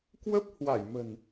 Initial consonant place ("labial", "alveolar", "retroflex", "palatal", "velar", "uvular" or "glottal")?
velar